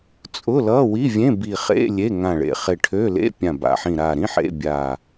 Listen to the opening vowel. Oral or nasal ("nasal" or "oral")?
oral